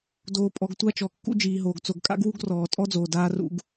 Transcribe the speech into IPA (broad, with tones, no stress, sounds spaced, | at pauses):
d oː˨ pʼ ɔ˨ ɡ tʷ a˦ t͡ʃ ɔ˨ kː ṵ˦ d͡ʒ iː˨ ɦ oː˨ ɡ t͡s o˨ ɡ kʼ a̰˦ ɡ w u˦ ɡ r ɔː˨ tʼ ɔ˦ d͡z oː˨ d aː˦ r ṵ˦ ɡ